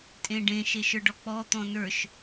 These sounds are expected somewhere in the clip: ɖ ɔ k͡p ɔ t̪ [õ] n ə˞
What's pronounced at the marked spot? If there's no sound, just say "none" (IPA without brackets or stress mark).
ɔ̃